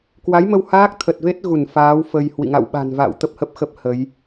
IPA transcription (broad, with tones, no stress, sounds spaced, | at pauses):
k w a˨˦ j m ə˧ w h aː˦˥ k̚ t̪ʰ ə˨˩ t̚ v e˦˥ t̚ ɣ u˧˩ n f aː˨˦ w f ə˧ j h w ḭ˧˨ ŋ a̰˧˨ w ɓ a̤˨˩ n v a̰ː˧˨ w t̪ ə˦˥ p̚ h ə˦˥ p̚ x ə˦˥ p̚ h ə˨˦ j